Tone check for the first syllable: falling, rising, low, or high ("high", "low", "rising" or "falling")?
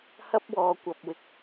high